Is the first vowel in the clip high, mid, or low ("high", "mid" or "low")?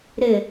high